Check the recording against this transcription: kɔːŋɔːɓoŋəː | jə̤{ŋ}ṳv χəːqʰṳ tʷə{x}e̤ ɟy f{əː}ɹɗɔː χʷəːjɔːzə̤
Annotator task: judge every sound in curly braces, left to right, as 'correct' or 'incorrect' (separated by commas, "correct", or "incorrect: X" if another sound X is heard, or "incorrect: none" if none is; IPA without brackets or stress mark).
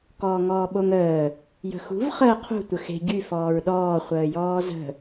incorrect: x, correct, incorrect: ɔː